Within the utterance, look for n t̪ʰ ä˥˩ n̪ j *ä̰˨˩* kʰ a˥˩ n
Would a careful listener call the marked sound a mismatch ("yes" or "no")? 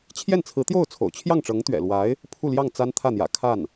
no